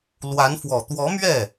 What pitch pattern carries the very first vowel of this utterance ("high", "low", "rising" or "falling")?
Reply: rising